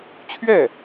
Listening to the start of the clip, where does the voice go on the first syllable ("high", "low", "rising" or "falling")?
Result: falling